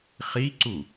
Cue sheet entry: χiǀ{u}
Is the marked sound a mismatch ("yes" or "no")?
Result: no